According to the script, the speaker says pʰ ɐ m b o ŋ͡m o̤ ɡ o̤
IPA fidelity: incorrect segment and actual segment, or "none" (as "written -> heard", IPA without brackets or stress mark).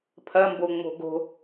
none